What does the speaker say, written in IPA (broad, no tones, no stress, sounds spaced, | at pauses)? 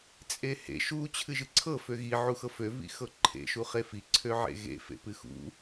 t͡sʼ e h ḛ ʃ u t͡ɕʰ ɨ ʒ ɨ ǀʰ ɤ f ø ɣ i ʕ u x ɤ f ø v ḭ x ɤ ǃʰ ḛ ʃ u χ e f i ǀʰ ø ʕ ḛ ɣ ḛ f ḛ p ɨ x ṵ